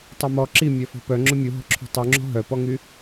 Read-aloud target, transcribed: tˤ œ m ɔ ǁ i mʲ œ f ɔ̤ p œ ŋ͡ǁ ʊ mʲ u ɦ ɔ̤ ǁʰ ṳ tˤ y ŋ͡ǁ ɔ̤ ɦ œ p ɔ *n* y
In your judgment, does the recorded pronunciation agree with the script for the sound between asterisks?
no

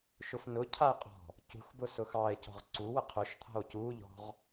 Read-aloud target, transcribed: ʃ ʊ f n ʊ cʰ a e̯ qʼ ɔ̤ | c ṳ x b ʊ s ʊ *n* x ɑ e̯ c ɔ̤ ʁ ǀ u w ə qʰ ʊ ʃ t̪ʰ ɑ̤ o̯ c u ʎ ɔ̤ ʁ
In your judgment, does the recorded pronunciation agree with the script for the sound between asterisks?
no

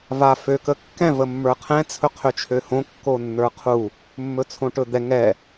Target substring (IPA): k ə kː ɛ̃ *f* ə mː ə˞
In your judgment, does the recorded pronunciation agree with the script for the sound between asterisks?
no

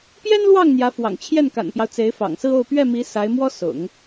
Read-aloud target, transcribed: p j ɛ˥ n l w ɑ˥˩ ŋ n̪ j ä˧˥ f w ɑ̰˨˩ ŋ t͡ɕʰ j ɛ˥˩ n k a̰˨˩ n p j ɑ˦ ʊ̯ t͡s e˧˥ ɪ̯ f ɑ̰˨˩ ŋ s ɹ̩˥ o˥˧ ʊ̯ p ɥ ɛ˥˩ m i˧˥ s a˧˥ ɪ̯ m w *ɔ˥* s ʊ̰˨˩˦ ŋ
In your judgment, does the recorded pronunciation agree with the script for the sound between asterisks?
yes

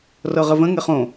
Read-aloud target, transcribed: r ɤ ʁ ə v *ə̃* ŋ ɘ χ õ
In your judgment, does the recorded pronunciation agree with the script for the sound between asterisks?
yes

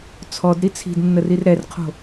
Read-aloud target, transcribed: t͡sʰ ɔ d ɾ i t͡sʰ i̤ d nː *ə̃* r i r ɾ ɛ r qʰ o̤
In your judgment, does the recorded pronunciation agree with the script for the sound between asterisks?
no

